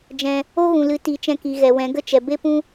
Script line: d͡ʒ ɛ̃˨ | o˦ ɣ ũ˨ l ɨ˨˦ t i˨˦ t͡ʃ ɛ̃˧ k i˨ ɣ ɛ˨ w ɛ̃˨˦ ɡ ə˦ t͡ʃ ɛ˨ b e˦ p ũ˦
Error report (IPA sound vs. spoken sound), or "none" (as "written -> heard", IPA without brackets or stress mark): none